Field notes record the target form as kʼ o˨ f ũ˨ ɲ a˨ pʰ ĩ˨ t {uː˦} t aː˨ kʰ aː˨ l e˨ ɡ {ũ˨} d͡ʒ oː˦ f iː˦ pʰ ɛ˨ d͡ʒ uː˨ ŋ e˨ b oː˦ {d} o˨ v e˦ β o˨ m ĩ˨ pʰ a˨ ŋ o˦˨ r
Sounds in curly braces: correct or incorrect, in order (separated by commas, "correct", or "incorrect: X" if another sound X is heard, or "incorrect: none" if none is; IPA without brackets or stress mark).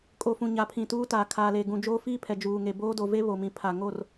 correct, correct, correct